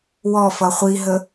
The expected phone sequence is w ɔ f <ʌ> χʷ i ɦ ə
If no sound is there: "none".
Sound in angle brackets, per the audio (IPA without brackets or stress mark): ʌ